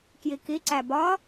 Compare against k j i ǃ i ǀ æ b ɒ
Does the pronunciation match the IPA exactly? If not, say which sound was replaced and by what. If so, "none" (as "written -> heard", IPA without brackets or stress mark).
ǃ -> k